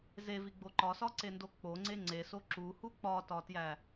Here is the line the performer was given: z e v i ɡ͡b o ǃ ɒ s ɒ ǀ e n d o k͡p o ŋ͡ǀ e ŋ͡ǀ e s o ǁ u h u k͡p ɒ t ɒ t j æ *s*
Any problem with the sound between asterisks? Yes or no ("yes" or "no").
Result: yes